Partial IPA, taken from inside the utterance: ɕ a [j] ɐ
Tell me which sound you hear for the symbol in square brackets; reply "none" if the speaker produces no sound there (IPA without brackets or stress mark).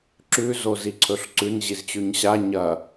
ɲ